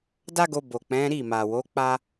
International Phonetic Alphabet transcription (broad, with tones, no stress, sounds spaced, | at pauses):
d a˦ ɡ o˧ b o˨ k͡p ɛ̃˨˦ ɾ i˦˨ m a˨ w o˨˦ k͡p a˦